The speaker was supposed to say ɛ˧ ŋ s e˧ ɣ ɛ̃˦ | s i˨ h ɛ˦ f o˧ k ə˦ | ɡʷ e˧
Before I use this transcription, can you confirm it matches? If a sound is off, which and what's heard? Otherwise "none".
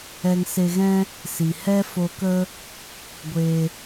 none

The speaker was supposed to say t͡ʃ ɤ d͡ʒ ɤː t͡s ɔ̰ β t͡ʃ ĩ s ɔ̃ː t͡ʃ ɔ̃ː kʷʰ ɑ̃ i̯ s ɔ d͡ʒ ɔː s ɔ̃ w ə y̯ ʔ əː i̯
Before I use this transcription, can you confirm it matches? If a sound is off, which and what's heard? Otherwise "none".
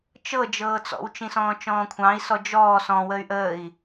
β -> w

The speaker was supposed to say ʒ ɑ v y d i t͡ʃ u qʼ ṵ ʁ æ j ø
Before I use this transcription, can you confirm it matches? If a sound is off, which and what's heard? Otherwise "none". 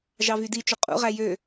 none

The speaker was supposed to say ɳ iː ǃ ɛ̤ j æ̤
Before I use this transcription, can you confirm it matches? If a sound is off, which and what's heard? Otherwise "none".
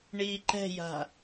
æ̤ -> a̤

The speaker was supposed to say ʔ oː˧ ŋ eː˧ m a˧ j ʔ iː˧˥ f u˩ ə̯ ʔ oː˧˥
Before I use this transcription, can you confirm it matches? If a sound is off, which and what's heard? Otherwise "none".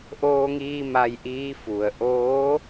eː˧ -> iː˧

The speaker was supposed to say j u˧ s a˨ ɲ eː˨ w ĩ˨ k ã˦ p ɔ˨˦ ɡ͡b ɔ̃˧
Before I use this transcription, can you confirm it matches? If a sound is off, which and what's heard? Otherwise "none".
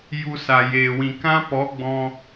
ɲ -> j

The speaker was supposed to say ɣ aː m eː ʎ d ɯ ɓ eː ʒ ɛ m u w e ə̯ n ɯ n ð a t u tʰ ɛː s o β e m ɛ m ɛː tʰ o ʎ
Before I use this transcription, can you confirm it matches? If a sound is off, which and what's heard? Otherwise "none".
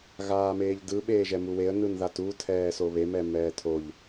none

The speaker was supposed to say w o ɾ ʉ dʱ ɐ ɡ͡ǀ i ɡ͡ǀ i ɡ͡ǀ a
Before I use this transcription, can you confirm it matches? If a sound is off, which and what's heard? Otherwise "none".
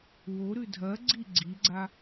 none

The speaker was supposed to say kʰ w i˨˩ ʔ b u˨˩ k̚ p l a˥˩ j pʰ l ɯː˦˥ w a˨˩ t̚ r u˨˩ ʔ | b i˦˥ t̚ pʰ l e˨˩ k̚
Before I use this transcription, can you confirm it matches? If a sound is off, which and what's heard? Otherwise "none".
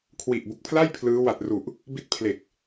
p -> pʰ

